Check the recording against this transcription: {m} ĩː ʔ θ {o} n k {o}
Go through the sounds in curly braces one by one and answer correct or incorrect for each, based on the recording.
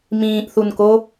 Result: correct, incorrect: u, correct

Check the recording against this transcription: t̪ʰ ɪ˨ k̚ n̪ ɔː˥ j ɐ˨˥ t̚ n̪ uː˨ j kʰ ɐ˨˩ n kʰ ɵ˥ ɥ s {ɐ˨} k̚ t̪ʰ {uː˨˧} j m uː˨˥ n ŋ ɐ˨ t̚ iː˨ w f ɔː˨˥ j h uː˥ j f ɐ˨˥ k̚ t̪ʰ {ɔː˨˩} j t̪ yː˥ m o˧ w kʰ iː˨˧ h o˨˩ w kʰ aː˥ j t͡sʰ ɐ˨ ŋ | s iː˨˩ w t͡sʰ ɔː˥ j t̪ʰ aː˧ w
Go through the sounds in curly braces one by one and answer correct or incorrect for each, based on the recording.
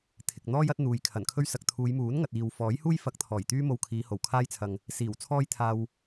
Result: correct, correct, correct

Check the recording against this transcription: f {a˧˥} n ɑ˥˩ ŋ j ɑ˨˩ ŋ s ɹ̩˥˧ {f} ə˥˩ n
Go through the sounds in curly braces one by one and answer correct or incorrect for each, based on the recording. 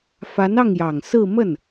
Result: correct, incorrect: m

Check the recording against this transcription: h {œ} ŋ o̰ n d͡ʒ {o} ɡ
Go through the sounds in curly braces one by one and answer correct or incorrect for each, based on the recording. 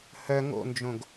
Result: correct, incorrect: õ

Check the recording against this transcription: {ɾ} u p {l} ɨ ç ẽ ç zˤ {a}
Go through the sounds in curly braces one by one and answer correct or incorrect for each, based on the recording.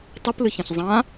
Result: incorrect: tˤ, correct, incorrect: ã

